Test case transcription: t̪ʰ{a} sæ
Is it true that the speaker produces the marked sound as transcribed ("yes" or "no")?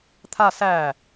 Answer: yes